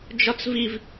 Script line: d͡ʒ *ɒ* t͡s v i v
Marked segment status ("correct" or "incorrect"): correct